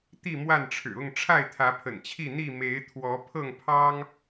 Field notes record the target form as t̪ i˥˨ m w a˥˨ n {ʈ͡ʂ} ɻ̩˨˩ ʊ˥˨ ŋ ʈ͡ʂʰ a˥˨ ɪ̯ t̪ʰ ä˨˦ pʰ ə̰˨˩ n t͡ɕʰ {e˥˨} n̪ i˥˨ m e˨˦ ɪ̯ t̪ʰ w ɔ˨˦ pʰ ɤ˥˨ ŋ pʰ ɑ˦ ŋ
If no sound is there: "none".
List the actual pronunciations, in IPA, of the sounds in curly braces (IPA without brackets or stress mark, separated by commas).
ʈ͡ʂʰ, i˥˨